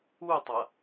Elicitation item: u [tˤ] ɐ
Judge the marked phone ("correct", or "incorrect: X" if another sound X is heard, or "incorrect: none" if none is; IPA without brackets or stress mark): correct